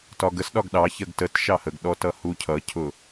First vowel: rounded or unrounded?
rounded